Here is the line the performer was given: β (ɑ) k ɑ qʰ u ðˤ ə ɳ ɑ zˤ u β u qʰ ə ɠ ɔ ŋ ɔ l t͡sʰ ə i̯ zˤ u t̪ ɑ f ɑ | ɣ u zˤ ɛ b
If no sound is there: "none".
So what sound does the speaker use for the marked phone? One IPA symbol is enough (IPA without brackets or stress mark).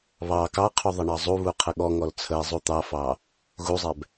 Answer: ɑ